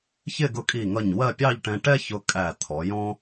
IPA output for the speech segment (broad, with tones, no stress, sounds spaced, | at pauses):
ç ɪ˥˧ ɡ ʊ˧ kʼ i˧˩ ŋ ʌ˧˩ ɲ w ɜ˥˧ pʲ ɑ˥˧ ʎ ʈ ɛ̃˧ ʈ ɛ˥ ç ʊ˧ kʼ æ˧˩ t̪ʰ ɔ˩˧ j ɔ̃˥